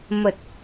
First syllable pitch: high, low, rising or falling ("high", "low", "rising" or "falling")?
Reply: low